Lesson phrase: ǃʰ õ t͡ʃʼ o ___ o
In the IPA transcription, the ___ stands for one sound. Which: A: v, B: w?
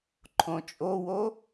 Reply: B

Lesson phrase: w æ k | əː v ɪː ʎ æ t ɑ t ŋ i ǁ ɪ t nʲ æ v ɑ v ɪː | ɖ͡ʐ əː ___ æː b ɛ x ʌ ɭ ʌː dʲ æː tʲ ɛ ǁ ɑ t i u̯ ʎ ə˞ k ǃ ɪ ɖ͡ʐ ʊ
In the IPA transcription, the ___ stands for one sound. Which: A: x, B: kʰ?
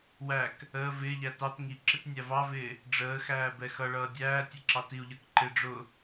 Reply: A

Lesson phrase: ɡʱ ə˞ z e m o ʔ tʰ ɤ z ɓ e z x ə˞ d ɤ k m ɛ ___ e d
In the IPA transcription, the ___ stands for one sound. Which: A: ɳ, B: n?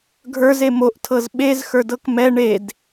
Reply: A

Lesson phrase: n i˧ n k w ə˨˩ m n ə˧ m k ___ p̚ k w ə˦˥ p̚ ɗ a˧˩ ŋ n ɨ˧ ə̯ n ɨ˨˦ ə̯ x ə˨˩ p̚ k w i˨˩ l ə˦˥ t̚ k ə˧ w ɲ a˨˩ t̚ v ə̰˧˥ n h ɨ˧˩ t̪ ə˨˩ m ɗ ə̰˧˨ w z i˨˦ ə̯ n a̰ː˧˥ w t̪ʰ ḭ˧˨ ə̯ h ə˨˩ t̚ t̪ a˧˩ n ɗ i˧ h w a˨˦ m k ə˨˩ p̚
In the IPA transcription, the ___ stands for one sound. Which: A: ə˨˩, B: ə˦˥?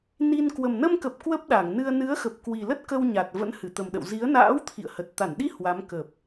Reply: A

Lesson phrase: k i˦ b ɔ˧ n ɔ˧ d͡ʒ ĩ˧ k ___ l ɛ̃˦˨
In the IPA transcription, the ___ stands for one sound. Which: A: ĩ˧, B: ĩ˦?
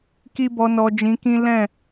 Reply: B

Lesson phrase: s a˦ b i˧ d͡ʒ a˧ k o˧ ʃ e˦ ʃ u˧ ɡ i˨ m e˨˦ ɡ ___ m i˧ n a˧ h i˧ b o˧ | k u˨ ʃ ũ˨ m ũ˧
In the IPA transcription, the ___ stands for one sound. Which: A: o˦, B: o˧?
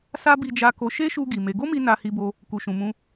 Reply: A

